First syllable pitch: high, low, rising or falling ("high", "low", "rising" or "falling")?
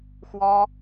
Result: high